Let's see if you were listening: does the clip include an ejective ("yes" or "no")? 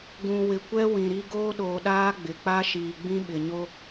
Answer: no